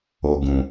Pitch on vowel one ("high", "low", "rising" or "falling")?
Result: low